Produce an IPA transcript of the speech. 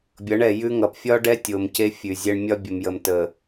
bʲ ʌ˨˦ ɳ ɛ˨ j ʉ˦ ŋ ʌ˨ p fʲ ɒ˦ ɖ ɛ˦ tʲ o˨ m c e˦ fʲ ʉ˨ zʲ ɛ˦ ɳ mʲ ɒ˦ bʲ ə˨ m j ə˨ m t ə˨

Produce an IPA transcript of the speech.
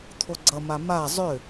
t̪ʰ o ɡ͡ǀ ʌ m a m a zˤ ʏ

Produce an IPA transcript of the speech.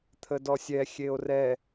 t̪ʰ ə d ɔ sʲ ɛ xʲ e o̯ r ɛ

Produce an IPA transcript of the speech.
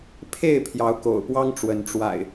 pʰ e˥˨ ɪ̯ pʰ j ɑ˨˦ ʊ̯ k o̰˨˩ ʊ̯ p w ɑ˦ ŋ ʈ͡ʂ w ə˨˦ n ʈ͡ʂ w a̰˨˩ ɪ̯

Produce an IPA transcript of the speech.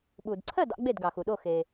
ɓ u˩ d ǀʰ ɜ˥˩ d ɑ̰˧ ɡ͡b e˥˩ d ɡ ɑ˩ x u˩ ɗ o˥˩ x e˩

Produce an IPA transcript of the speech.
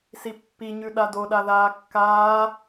s i pː i ɲ ʉ ɗ a d o ɗ a ð aː kː aː

